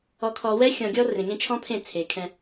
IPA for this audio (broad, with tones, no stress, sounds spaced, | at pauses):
ɔ˨ kʰ ɔ˨ w ɛ˦ xʲ ɔ̃˨ ɡʲ ɔ˦ r ẽ˨ ŋ ẽ˦ t͡ʃʰ ɔ̃˦ pʰ ẽ˦˨ t͡sʰ e˨ kʰ ɛ̃˦